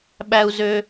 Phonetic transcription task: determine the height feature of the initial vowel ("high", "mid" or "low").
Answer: low